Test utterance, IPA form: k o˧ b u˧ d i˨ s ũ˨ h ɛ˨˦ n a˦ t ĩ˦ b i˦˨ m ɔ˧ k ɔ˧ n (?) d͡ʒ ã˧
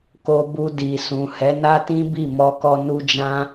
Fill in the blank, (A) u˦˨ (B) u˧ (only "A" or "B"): B